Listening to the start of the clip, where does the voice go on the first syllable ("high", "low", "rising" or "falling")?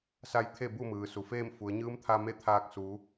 rising